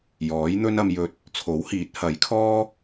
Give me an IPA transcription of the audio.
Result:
jɔː˨˥jn̪ɵ˥n ɐ˧mjɵ˧t̚ | t͡sʰo˨˥whiː˨˥t̚hɐ˨˥j kʰɔː˥

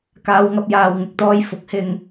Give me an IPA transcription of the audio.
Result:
kaː˨˧wŋɐ˧p̚jaː˨w ŋɪ˧k̚t̪ɔː˧j fʊ˨˥k̚hɪ˧ŋ

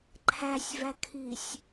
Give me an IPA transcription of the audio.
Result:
ǃʰæsʲvækʰisʲ

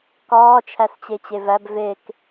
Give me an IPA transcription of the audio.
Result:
kɒː t͡ʃʰæst͡ɕet͡ɕevæb vek

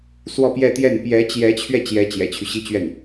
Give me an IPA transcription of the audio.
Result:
swɔ˥˧pjɛ˥˧t̪jɛ˥˩n pjɛ˧˥t͡ɕjɛ˧˥t͡ɕʰɥɛ˧ t͡ɕjɛ˧˥ t͡ɕjɛ̰˨˩t͡ɕʰy˦ ɕi˥t͡ɕɥɛ˥˩n

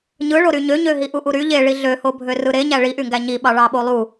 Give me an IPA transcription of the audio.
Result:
ɲɯɭoɾy ɲøɲøɦi ʔuʔuɾy ʎeɭi ɮøho bʱørɯɾeɲæ ɭiʔyŋɡæ ɲi ɓɑɭɑɓolˠu

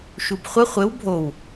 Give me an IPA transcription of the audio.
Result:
ʃubχʷə χʷɘw bʱow

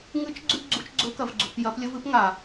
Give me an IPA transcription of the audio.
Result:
ŋɨ˧˥t͡ʃ ɡ͡ǀʉ˥ɡ͡ǀu˧˥t͡ʃ ɡ͡ǀɵ˧˥kɐ˩˧vɡ͡ǀṳ˩˧p jɐ˧˥plʲɵ˥vɨ˥p ŋa˩

